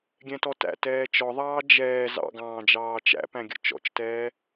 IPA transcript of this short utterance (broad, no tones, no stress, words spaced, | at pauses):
ɡʲɛ̃tɔtæ̰ tɛːt͡ʃɔðˤɑː d͡ʒɛː zɑ̰ɡɑ̃ːd͡ʒɑː t͡ʃæ̰pæ̃ɡʲə̰ t͡ʃɔ̰t͡ʃtɛː